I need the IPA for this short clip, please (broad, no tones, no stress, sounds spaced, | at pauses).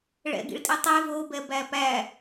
ɭ ɛ̰ ɡ ḭ ɭ tʼ i tˤ ɛ v o b ɛ b æ p æ